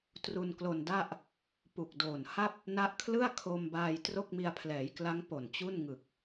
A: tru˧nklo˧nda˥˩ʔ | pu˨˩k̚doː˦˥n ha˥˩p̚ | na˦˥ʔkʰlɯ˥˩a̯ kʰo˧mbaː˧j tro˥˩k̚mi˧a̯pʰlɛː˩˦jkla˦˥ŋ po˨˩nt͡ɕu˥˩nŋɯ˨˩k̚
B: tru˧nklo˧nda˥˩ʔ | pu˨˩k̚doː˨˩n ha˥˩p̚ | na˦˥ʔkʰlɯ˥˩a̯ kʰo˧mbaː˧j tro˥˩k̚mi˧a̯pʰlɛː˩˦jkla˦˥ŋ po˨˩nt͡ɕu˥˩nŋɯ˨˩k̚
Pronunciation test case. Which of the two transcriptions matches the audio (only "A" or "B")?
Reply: B